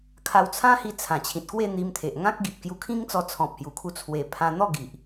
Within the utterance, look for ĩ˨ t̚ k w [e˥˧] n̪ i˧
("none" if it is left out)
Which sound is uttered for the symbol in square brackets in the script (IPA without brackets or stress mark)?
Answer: e˥˧